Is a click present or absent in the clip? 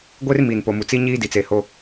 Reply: absent